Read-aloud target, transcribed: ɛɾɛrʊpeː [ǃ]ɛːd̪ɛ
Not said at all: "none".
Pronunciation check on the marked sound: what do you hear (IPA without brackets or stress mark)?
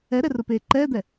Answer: ǃ